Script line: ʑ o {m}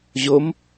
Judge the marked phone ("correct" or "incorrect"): correct